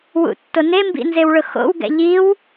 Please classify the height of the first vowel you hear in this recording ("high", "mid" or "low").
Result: high